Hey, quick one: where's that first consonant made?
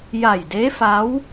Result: palate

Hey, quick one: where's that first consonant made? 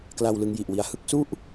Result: velum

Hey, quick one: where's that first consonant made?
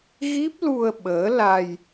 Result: velum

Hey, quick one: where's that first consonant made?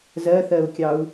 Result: tongue tip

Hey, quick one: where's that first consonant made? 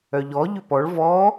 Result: palate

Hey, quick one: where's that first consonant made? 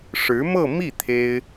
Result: retroflex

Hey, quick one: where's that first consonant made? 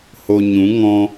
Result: throat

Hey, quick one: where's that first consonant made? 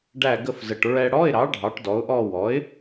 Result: retroflex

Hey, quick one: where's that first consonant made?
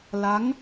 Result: tongue tip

